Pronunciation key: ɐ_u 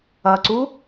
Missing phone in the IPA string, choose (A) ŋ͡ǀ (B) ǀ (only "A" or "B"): B